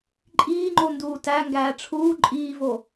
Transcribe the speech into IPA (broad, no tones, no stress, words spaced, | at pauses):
ǃʼiːŋ͡ǃo nduːtæŋɡæː ʈ͡ʂʰuː ǃʼiːvo